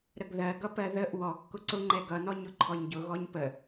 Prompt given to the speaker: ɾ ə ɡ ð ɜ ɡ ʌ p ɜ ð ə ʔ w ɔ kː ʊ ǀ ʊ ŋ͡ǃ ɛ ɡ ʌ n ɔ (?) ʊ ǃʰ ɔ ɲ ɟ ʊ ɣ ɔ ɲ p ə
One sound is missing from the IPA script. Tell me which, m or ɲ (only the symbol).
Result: ɲ